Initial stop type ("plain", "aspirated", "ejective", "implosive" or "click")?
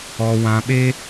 implosive